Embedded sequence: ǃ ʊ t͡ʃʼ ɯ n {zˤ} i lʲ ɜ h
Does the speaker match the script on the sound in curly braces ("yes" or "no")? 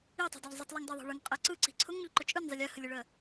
yes